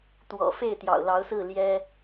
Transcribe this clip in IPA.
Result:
t̪ w ɔ̰˨˩ f e˥˨ ɪ̯ t̪ j ɑ̰˨˩ ʊ̯ l ɑ˨˦ ʊ̯ s ɹ̩˥˨ l j ɛ˦

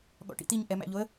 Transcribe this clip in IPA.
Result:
ɠ ɔ̰ ʈ ḭ t̪ i ɲ ʔ ɛ m æ̰ ʎ o ə̯

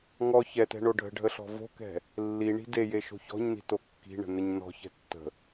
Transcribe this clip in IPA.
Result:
ŋ ɔ ç ɛ t ɛ̤ ɳ o ɖʱ ə̤ ɖʱ ə ɬ ɔ̤ v o̤ k ɛ̤ | lː i ɳ i̤ d e j e ʃ o̤ ç ɔ̤ ɲ n i̤ t o kː i̤ ɳ ə̤ n ə ɲ n ɔ̤ ç ɛ̤ tː ə̤

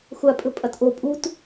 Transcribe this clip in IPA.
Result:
xʷ a pʼ ɵ pʼ ɐ t ʔ o pʼ u t

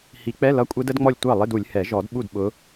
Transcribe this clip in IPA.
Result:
h i˨˩˦ k͡p ɛ˧˥˧ l ʌ˧˥˧ kʷʼ ɛ˦˥ d ə˦˥ d ŋ͡m ɔ˥˩ lʲ tʷ ɑ˥˩ lˠ ɪ˧˥˧ d u˨˩˦ lʲ h ɛ˨˩˦ ʒ ɔ˨˩˦ d ɓ u˥˩ d ɓ ʊ˨˦

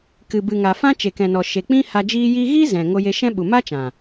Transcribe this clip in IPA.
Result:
k ɨ˨ b ɨ˨ ŋ a˨ f ã˧ t͡ʃ e˨ k ɛ̃˨ n ɔ˨ ʃ e˨ k͡p ĩ˦ h a˧ d͡ʒ iː˧ j iː˧ ɣ iː˦ z ɛ̃˨ ŋ o˧ j e˧ ʃ ɛ̃˦ ɓ u˨ m a˦ t͡ʃ ã˨

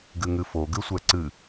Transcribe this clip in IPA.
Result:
ɡ ɨ ŋ ɨ f o ɡ ɨ sʷ ɛ ǀ ɨ

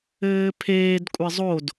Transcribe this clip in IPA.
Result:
ɘː pʰ eː d kʷʼ ɪ zˤ o d

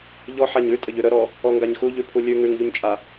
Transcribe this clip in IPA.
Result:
ʎ ɔ ħ a ɲ ʉ tʼ ə ʎ ʉ ɾ ə ɾ ɔ | ɔ ŋ ɡ a ɲ x u ʎ ʉ pʰ u lʲ ʉ ŋ ʉ ŋ ʎ u ɲ t͡ʃʼ a

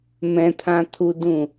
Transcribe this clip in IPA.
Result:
m ɛ̃ t̪ʰ ã t̪ʰ u d ũ

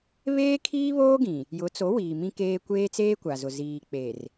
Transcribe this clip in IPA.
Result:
β eː˦ kʰ iː˦ β oː˦ ɡ ĩ˨ | j ʊ˨˦ t͡s o˨˦ w iː˨ m ĩ˦ k eː˦ kʷ eː˦ t͡s eː˦ kʷ a˨ z ʊ˨ z iː˨ k͡p e˨ r

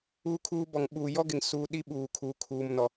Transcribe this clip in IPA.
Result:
u˦ kʰ uː˦ b ɔ˨ ŋ ɓ uː˨ j ɔ˦ ɡ ɪ˨ ŋ s uː˦ ɗ i˦ ɓ uː˨ kʰ uː˨ kʰ uː˨ m n ɔ˨

